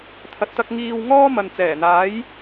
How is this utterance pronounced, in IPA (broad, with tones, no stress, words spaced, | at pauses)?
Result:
t̪ʰɐ˨t̚t̪ɐ˧k̚ ŋiː˧w ŋɔː˥ mɐ˨nt͡sɛː˨˩n̪aː˨˥j